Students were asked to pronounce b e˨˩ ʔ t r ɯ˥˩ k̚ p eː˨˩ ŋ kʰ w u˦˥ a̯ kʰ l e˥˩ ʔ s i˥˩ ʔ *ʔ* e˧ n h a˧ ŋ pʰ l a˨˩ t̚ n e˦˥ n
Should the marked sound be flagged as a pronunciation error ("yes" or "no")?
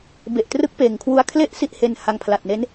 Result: yes